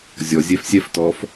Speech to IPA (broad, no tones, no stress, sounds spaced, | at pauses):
zʲ ɔ zʲ ɛ f sʲ ɛ f t ɔ f